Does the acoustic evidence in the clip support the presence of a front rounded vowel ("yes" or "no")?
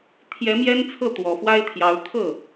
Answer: no